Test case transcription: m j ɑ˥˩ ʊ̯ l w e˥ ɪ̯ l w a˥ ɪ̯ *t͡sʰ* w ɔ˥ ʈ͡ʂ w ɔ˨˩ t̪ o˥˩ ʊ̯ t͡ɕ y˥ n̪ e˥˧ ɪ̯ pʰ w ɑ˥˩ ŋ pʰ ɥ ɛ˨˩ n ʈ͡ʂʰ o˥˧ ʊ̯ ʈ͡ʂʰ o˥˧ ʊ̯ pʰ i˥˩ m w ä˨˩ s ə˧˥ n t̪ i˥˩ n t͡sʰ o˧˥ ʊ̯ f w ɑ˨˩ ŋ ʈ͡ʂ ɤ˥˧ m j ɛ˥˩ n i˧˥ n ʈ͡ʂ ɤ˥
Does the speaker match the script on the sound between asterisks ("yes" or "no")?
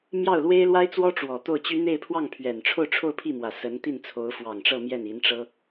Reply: no